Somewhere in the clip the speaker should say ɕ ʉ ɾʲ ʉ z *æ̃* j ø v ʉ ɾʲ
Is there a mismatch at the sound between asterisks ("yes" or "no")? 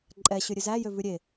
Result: yes